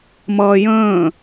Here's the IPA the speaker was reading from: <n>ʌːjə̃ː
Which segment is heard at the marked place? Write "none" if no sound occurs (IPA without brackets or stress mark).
m